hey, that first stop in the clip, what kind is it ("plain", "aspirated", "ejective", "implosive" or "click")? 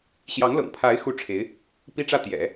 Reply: aspirated